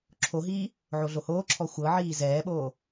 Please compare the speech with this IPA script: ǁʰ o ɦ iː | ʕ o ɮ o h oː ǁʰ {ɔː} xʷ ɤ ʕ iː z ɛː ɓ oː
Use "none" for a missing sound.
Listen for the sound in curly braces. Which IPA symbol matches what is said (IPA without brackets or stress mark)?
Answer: ɔ